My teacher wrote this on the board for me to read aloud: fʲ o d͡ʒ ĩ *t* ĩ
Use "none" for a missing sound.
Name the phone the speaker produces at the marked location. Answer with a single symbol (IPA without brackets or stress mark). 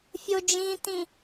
t